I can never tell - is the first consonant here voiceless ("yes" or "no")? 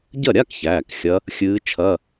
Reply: no